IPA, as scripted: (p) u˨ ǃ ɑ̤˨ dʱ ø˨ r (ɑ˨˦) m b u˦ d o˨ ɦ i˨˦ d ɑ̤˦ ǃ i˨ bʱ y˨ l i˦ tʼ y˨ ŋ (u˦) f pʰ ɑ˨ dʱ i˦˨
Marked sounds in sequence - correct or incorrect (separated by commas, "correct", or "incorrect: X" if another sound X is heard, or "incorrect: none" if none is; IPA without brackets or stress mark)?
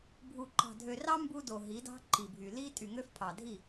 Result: incorrect: bʱ, incorrect: ɑ˦, incorrect: ø˦